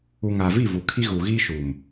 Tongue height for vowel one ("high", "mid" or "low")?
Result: high